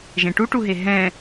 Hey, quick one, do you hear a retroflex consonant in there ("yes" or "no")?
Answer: yes